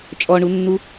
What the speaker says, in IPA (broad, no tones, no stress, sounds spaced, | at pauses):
t͡ʃʼ ɔ ɳ u nː u